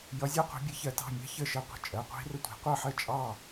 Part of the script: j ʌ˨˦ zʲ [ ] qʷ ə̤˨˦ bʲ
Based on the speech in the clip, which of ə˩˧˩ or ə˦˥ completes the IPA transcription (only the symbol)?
ə˦˥